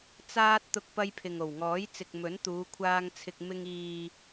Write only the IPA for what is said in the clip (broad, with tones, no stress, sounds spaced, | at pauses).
t͡s aː˥ t̚ t̪ ʊ˥ k̚ p ɐ˥ j pʰ ɪ˨ ŋ o˨˩ w ŋ ɔː˨˥ j t͡s ɪ˨ k̚ m ɵ˨˥ n t̪ uː˨˧ kʷʰ aː˧ ŋ t͡sʰ ɪ˨ k̚ m ɪ˧ ŋ iː˨